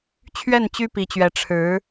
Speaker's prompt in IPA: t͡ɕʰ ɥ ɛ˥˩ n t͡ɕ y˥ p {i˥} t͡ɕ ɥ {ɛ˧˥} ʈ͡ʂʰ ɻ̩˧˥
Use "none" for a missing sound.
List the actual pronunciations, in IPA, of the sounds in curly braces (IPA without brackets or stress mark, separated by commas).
i˧˥, ɛ˧˥